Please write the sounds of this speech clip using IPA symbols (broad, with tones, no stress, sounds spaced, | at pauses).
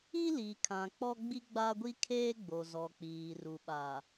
i˦ l iː˨ kʰ ã˨ k͡p ɔ˦ ɡ͡b i˦ ɡ͡b a˦ ɡʷ i˦ kʰ eː˦ ɡ͡b o˨ z ɔ˨ k͡p iː˨ r u˨ ɓ a˨